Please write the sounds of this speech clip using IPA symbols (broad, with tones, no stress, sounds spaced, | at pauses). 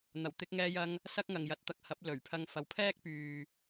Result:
n̪ ɐ˨˩ w t̪ ɪ˧ k̚ ŋ ɛː˧ j ɐ˧ ŋ | s ɐ˥ k̚ ŋ ɐ˨ ŋ j ɐ˨˥ t̚ t̪ ɐ˨ k̚ h ɐ˨˥ p̚ l ɵ˨˩ ɥ pʰ ɐ˧ ŋ f ɐ˨ w pʰ ɛː˥ k̚ p yː˨